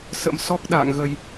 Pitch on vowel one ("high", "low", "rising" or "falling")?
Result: rising